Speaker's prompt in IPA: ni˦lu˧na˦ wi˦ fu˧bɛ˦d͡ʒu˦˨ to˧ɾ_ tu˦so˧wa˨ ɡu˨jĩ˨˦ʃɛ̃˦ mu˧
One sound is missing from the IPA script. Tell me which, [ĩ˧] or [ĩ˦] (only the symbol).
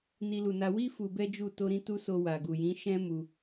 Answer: ĩ˦